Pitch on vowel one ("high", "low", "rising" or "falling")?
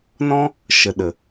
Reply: high